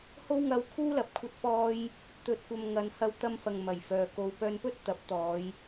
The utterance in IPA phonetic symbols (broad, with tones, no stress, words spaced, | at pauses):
ho˥wŋɐ˧wkʰuː˥lɐ˨p̚ kʷʰɐ˧t̚fɔː˧j | t̪ɵ˨t̚kʷɐ˨m ŋɐ˨n hɐ˧wt̪ɐ˧mfɐ˨ŋ mɐ˨˩jfœː˨ ko˨˧wpœː˧npɵ˥t̚ t̪ɐ˨˥p̚t̪ɔː˨˧j